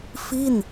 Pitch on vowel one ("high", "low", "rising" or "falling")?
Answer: falling